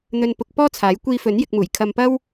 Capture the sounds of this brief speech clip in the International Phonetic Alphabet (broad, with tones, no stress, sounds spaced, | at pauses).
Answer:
n̪ ɵ˥ n p ʊ˧ k̚ p ɔː˥ t͡sʰ aː˨˥ j kʷ iː˧ f ɵ˨˥ n j ɪ˧ k̚ m uː˨˩ j kʰ ɐ˧ m p ɐ˥ w